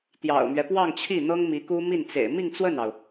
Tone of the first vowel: low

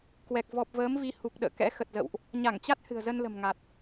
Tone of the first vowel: low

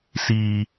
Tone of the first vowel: high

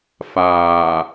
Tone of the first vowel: low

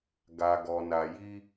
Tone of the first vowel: low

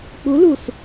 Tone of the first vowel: rising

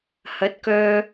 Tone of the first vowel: rising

